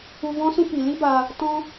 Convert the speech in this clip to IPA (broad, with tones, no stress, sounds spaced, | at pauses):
u˧ v ɔ̃˦ s ũ˦ p i˨ l i˦ b a˧ | t ɔ̃˦